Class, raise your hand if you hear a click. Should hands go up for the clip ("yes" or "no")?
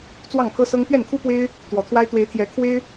no